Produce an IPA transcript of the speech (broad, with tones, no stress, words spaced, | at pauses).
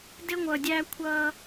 dɪ˦ŋʷʌ˨dʲæ˦ kʷʰʌ˦